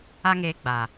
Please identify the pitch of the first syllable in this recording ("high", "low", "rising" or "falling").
high